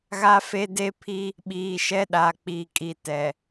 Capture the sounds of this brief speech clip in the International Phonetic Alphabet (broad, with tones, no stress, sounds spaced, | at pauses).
ɣ a˦ f e˦ d e˦ pʰ i˦ | ɓ iː˨ ʃ ɛ˦ ɗ a˨ k͡p iː˨ kʼ i˨ t ɛ˨